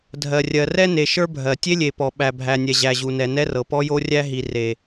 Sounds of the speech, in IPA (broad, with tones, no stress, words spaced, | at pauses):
dʱɜ˨ rʲɜ˨rɛ˦ne˨ ʃə˞˦bʱɜ˨ tʲe˦lʲe˨pɔ˨ ɓæ˨bʱæ˨nʲɛ˨ʑæ˨ ʑu˨nɛ˨nɛ˦rɤ˨ pɔ˦jo˦rʲæ˦ ɦi˨ re˨